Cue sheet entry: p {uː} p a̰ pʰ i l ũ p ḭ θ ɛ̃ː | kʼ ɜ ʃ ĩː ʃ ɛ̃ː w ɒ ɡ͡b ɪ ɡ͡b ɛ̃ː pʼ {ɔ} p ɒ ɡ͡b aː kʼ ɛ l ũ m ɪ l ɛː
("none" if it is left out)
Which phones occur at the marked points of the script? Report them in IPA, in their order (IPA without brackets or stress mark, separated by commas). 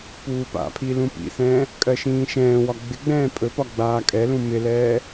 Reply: uː, ɵ